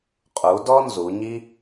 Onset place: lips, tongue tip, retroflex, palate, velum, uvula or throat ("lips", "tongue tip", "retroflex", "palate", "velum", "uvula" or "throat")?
uvula